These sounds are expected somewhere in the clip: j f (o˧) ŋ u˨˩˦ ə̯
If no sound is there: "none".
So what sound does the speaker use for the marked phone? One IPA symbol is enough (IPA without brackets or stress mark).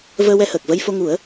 o˧